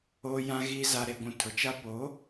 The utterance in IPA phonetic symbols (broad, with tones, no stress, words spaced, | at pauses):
oː˨jã˨ɣiː˨ za˨ɾe˨ɡʷũ˨ tʰʊ˨t͡ʃa˦ po˨˦